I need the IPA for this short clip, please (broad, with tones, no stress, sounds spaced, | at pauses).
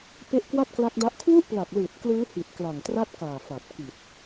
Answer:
p e˦˥ ʔ k w a˥˩ t̚ k l a˦˥ k̚ d a˦˥ ʔ kʰ w u˥˩ ʔ p l a˨˩ k̚ l ɯː˨˩ t̚ k l ɯː˦˥ h i˨˩ t̚ k l a˨˩ ŋ t r a˥˩ t̚ k aː˨˩ f a˨˩ t̚ k i˨˩ t̚